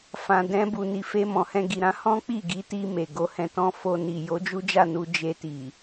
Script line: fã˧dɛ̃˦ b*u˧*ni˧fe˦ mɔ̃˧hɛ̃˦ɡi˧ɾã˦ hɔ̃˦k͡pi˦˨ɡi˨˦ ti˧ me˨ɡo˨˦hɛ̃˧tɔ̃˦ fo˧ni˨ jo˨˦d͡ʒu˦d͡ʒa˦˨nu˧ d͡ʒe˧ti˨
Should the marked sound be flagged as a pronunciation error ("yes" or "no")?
no